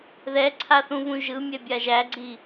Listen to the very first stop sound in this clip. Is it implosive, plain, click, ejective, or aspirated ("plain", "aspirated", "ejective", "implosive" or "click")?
click